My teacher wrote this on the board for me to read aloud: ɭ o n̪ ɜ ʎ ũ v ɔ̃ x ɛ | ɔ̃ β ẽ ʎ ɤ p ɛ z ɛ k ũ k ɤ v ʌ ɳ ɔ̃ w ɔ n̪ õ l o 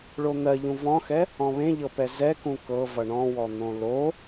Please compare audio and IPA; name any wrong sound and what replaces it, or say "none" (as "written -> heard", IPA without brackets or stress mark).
none